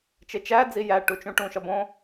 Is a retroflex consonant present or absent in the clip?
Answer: present